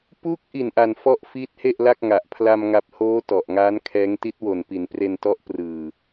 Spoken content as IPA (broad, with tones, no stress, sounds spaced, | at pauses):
p u˦˥ k̚ ʔ i˨˩ n ʔ a˨˩ n f ɔ˥˩ ʔ f iː˦˥ t̚ h e˥˩ ʔ l a˥˩ k̚ ŋ a˨˩ ʔ pʰ l a˧ m ŋ a˨˩ p̚ h oː˦˥ t ɔ˨˩ ʔ ŋ aː˦˥ n kʰ ɛː˦˥ ŋ t i˦˥ t̚ w o˨˩ n p i˩˦ n p r e˧ n t ɔ˦˥ ʔ p r ɯː˨˩